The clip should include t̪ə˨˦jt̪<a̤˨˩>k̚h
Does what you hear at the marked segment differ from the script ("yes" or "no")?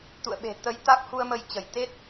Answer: yes